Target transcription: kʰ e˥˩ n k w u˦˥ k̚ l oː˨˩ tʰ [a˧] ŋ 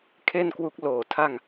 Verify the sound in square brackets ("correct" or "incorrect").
incorrect